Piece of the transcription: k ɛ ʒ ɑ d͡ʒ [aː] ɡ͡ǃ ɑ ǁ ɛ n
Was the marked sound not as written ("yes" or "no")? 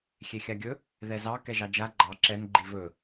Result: yes